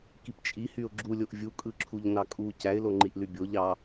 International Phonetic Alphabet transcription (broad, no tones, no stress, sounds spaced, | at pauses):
k i p t͡ʃʼ i h y ʊ̯ ɡ͡ǁ u lʲ o ʔ vʲ u kʼ ɯ ǁʰ u ʎ n ɑ kʼ u c æ ɪ̯ l o ŋ͡ǃ i ʔ l y bʲ o ʎ ɑ